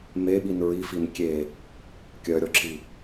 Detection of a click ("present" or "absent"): present